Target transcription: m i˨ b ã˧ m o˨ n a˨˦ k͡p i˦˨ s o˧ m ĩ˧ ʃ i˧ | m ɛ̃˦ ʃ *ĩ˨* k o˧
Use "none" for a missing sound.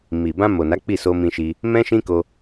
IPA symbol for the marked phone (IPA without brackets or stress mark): ĩ˦